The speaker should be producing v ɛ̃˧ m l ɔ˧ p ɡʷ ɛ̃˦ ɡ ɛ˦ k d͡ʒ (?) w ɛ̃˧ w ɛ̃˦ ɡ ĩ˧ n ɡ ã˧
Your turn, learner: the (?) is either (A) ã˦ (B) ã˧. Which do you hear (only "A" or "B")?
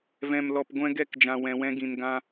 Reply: B